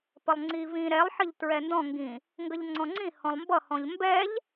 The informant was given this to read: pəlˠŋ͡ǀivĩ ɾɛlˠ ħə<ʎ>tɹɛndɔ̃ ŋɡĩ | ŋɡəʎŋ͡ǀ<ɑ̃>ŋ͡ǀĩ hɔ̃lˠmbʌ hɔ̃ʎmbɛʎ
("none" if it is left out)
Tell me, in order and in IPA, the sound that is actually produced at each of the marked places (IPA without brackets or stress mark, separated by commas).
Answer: ʎ, ɔ̃